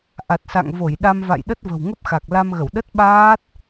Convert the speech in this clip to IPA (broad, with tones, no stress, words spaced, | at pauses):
ʔa˨˩t̚sa̰˧˨ŋ vo˧˩jɗa˧mva̰˧˨jɗə˦˥t̚ və̤˨˩wŋə˦˥p̚xa˨˩k̚ la˧mɣə˧˩w ɗə˦˥t̚ɓaː˦˥t̚